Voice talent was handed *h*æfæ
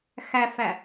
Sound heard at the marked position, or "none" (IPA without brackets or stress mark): x